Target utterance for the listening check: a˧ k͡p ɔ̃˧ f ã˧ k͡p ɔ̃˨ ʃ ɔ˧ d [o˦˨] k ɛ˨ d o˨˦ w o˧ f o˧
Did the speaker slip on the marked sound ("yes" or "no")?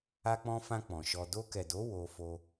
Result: yes